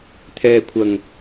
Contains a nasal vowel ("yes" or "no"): no